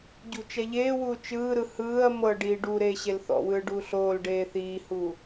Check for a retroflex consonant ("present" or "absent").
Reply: present